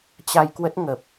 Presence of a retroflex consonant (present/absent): absent